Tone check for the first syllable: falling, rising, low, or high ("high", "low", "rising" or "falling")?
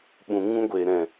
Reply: low